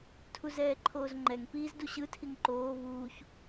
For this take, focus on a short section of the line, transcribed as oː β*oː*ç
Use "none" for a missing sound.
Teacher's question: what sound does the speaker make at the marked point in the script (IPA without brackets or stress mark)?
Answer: uː